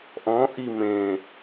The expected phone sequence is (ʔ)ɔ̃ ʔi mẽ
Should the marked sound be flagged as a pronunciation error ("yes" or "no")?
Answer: no